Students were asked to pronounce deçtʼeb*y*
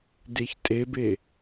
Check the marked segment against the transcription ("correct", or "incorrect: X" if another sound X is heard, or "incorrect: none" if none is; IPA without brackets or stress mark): incorrect: e